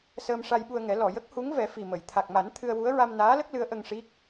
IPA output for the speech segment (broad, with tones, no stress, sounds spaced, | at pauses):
s əː˧ m ʂ a˧ j ɓ u˧ ə̯ ŋ ɛ˨˩˦ l ɔ˨˩˨ j ə˦˥ k̚ h u˧˥ ŋ v ɛ˨˩˦ f i˨˩ m ə˨˩˨ j t̪ʰ a˨˩ k̚ m a˨˩˦ n t̪ʰ ɨ˧ ə̯ w u˧˥ ə̯ ɹ a˧ m n aː˧˥ l ə˦˥ k̚ l ɨ˧˥ ə̯ ʔ ə˧ ŋ ʂ i˦˥ k̚